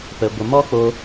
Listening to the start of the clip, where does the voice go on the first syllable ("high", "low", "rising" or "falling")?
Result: low